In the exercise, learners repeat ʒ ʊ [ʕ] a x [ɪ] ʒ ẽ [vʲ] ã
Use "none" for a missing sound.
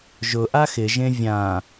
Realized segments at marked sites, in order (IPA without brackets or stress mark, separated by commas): ʔ, ɪ, vʲ